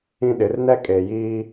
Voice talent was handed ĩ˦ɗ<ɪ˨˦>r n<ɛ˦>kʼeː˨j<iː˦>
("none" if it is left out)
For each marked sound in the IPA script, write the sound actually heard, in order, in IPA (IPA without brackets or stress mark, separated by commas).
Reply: ɪ˨˦, ɛ˦, iː˦